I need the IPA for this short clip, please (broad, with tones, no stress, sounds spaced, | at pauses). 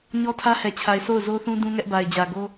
ɲ ɔ˦ tʰ ä˦ h ɛ˨ t͡ɕʰ a˨ ɪ̯ sʰ o˦˨ ʊ̯ z o˦ θ ũ˦ d ũ˦ ŋ ɛ˦ ʔ b a˨ ɪ̯ d͡ʑ ä˨ ɡ o˦